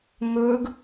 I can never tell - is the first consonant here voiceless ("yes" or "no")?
no